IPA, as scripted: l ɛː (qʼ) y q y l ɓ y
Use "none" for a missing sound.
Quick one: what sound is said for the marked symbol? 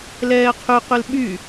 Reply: qʰ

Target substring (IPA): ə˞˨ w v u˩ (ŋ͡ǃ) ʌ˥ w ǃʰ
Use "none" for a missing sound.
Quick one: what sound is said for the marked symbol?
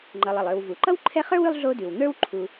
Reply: ǃ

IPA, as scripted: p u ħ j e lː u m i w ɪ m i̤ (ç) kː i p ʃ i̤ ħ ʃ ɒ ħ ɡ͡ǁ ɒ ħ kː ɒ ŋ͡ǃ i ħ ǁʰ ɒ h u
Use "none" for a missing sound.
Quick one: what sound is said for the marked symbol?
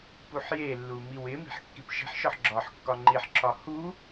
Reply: ħ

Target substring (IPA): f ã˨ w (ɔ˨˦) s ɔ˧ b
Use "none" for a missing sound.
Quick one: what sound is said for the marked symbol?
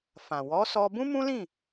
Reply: ɔ˨˦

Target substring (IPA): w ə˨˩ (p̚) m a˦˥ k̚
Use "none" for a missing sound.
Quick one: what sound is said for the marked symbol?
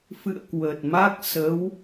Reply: t̚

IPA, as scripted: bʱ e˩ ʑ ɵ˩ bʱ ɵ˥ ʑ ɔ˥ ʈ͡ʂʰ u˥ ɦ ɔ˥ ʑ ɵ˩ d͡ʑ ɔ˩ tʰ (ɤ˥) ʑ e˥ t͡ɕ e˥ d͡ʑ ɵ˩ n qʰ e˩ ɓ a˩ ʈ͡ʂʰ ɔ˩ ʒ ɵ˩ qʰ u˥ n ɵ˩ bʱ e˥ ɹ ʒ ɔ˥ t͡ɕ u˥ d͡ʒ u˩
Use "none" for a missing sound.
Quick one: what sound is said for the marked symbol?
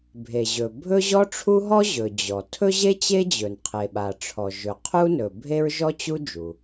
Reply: ɵ˥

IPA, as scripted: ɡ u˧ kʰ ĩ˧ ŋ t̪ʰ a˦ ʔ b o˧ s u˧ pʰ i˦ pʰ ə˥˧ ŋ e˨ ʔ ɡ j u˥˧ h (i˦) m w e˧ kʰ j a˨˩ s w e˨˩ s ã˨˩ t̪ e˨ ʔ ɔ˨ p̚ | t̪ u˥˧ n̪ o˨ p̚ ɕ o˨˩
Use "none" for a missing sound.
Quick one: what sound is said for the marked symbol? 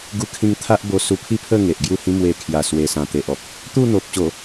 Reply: ĩ˦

